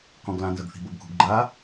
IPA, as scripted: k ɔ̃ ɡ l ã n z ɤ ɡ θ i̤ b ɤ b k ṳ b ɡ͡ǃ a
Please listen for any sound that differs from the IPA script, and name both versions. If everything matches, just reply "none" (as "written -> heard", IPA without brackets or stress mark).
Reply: none